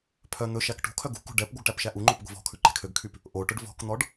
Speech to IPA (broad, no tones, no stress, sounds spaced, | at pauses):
pʰ œ n̪ ɵ ʃ æ k ʈ ṳ kʰ œ ɡ ṳ k ṳ ɖ ɛ p ɡʷ œ ɡ ʈ æ p ʃ æ ʔ u ŋ͡ǃ o p ɡʷ e̤ v ɔ̤ kʰ ʉ ǃ e̤ kʰ ø ɡ kʰ y p | ʔ o ʈ ɵ ɖ v ɔ̤ k n̪ ɔ ɖ